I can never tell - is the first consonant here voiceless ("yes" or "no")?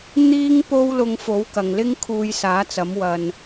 no